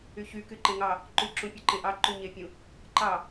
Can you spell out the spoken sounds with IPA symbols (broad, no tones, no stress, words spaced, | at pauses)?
yçyky ǃẽŋɑ | ǃʉǁũ pʲuǃẽʔɑ ǃyɲepʲũ | ǃɑ